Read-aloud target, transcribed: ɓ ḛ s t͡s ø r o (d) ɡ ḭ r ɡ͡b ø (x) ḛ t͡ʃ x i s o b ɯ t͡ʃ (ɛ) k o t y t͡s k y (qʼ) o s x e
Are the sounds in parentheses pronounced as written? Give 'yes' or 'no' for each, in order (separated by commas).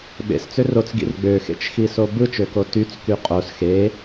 no, yes, no, yes